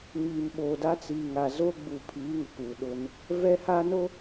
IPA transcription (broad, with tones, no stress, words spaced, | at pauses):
ɲiː˨mɓoː˨da˦ t͡si˨ ŋa˨ zoː˦ɡ͡bu˨pʰiː˨˦ ŋʊ˨kuː˨ ɗʊ˦n | vɛ˦ha˦no˦